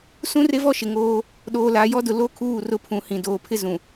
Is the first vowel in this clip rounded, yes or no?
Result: yes